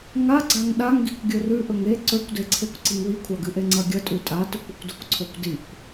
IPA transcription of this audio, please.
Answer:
ŋ a ɡ͡ǀ a ŋ ɗ a ŋ ɡ i kʷ ɡʲ ɵ r ʉ ʔ ɵ ŋ e ǀ ɵ kʷ d e ǀʰ e kʷ ǀ i ŋ w i kʷʰ a ɡ ɨ ʔ e ŋ͡ǀ ɐ ɡʲ ɐ tʼ ʉ tʼ a t ɵ kʷ ɨ kʷ d ɵ kʷ ǀʰ o kʷ d i kʷ

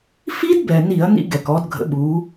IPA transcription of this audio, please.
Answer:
f i˦˥ d b ɛ˩ n i˧˩˧ ɐ̯ n ḭ˧ ɡ ɛ˩ k ɔ˩˧ d ɡʱ ə̰˩˧ ɓ u˩˧

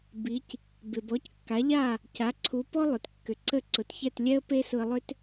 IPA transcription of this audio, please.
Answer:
b i˩˥ c | b ɪ˩ b ɔ˩˥ c kː a˩˥ ʎ a˥˩ | c a˩˥ ǀʰ u˩˥ p ɔ˥ lˠ ʏ˩ t kː ʏ˩ ǀ ə˥˩ ǀ ʊ˩ t ç ɛ˥˩ t lʲ ɛ˥ ə̯ p e˥ s ʊ˧ ə̯ lˠ ʏ˥ t

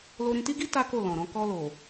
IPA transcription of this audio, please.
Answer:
l o˧ ɾ ĩ˧ t i˦ ɡ i˦ t a˦ k o˦˨ l ɔ̃˨ ɾ ɔ̃˧ k ɔ˧ l o˨

